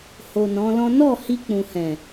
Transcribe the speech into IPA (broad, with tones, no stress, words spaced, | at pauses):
ho˨ nɔ̃˨˦lɔ̃˦ nɔ˦˨ hi˧k͡pũ˨hɛ̃˨